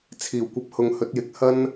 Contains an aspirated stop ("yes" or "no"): yes